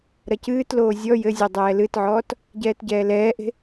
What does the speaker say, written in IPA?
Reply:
ɾ ɐ c ɨː t l oː zʲ ɔ j ɘ zʲ ɔ dˤ ɛː l ɨ t ʕ ɔː t | ɟ ɛː t ɟ ɛː l ɛː ʔ e̤

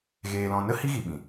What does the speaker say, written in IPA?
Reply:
ɣ eː˨ l ɔ̃˨ n ə˦ h i˦ ɣ i˨ ɓ ĩ˨

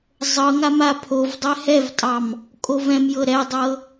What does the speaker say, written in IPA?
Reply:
zˤ ɤ ŋ a m a pʰ o v dˤ ɛ h ɛ v tʼ ɑ m | kʼ o v ɛ̃ m j ɤ ɾ ɛ dˤ ɤ

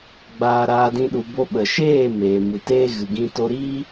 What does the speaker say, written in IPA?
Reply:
ɡ͡b aː˧ ɾ aː˧ d ĩ˦ ɗ u˧ b o˦ ɓ ə˨ ʃ eː˦˨ m eː˨ m ɨ˨ t eː˦ ɣ ɨ˨ ɡ ĩ˧ t o˧ ɾ iː˦

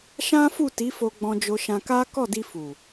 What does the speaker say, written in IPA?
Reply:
ʃ ã˦ f u˦˨ t i˨˦ f o˧ ɡ͡b ɔ̃˧ d͡ʒ o˧ ʃ ã˧ k a˦ k ɔ˦˨ d i˧ f u˨

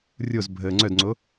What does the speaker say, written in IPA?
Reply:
rʲ o z bʱ əː ŋ͡ǀ œ d ŋ͡ǀ o

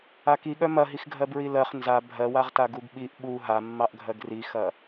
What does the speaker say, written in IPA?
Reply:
a k i ɠ œ m ɐ ɦ i x ɡʱ ɜ b ɹ i l ɜ χ n z a bʱ ɜ w a ʁ t a ɡ u ɡ ɓ i ʔ ɓ u ɦ a mː ɑ ʔ ɡʱ ɜ ɡ r i x ɐ

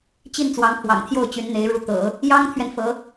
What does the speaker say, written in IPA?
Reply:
t͡ɕ i˥˩ n t͡s w ɑ˧˥ ŋ pʰ w ɑ̰˨˩ ŋ t̪ʰ j o˥˩ ʊ̯ t͡ɕ y˧˥ n n̪ e˧˥ ɪ̯ ɻ u˧˥ t̪ ɤ̰˨˩˦ | j ɑ˥ ŋ t̪ʰ ɥ ɛ˨ n f ɤ˧˥

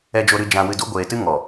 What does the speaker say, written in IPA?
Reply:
ɛ˧ d͡ʒ o˧ ɾ ɨ˧ d͡ʒ ã˧ w ɨ˧ d u˦ ɡʷ eː˨ t ɨ˦ ŋ ɔ˨

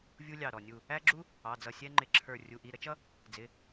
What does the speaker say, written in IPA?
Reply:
vʲ u˥ lʲ ɑ˧˩ ɾ ɔ˧˩ nʲ u˧˩ | æ˥ ɡ͡ǁ u˥ | ɑ˩˧˩ d͡z ʌ˧˩ sʲ ɛ˥ ŋ͡ǃ ɪ˧˩ ǁʰ ə˞˧˩ rʲ u˩˧˩ ʔ i˩˧˩ ɾ ə˥ t͡ʃ ʌ˥ | d͡z ɪ˩˧˩

